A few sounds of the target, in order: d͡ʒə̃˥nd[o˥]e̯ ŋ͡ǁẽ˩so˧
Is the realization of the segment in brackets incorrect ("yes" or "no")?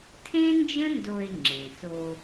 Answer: yes